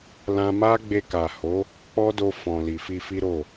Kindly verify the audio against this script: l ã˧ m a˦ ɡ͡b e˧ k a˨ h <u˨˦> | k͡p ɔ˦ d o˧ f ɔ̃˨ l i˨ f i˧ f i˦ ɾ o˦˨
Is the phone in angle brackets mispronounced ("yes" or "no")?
yes